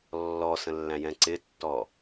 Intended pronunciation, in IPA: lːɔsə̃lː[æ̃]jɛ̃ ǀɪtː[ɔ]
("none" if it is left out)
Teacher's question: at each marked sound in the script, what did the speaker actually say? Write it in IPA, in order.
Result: æ̃, ɔ

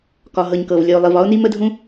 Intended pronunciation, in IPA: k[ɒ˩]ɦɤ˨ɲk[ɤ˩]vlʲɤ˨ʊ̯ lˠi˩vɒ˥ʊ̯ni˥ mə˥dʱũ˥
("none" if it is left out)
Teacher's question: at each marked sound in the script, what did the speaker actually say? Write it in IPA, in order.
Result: ɒ˨, ɤ˩

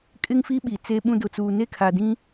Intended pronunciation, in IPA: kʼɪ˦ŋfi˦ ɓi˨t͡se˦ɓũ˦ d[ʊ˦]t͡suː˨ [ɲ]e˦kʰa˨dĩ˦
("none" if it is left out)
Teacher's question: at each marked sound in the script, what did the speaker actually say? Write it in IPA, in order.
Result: ʊ˨, n

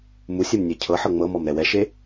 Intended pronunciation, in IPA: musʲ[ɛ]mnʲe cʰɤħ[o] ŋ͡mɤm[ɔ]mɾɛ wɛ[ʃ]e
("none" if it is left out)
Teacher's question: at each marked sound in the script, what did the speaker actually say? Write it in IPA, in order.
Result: e, ɤ, ɔ, ʃ

